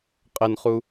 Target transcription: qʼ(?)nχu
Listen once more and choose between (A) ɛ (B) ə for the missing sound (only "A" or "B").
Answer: B